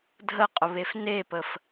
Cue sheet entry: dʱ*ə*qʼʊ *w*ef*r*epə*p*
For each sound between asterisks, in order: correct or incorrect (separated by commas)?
correct, incorrect, incorrect, incorrect